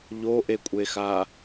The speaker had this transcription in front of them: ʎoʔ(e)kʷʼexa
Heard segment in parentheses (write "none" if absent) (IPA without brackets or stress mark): e